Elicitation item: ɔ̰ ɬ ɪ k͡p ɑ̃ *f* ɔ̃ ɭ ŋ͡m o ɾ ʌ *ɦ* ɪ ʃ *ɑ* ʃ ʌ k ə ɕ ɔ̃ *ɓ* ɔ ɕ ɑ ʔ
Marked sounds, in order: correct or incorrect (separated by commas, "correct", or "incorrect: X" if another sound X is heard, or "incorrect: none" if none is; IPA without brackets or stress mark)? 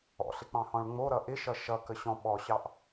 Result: incorrect: h, incorrect: ʔ, incorrect: ʌ, correct